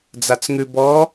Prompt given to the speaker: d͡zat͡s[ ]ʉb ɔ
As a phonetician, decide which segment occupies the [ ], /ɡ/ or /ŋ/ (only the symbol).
ŋ